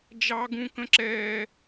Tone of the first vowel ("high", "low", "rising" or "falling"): high